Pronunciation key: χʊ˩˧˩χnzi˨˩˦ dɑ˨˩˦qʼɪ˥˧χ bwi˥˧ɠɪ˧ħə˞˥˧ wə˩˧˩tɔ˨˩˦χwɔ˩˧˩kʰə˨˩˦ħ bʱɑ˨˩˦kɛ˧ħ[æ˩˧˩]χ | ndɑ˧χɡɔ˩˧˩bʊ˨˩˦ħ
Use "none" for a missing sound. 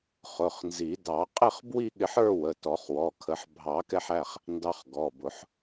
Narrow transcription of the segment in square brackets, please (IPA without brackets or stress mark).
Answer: æ˩˧˩